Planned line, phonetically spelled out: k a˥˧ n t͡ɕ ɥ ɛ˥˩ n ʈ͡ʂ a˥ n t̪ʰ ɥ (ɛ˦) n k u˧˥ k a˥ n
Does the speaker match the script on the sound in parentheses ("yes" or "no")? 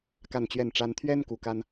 no